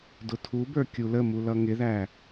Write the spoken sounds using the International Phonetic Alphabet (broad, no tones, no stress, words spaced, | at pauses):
dʊtʰubə˞ kʲuləmu lʌŋɪðæ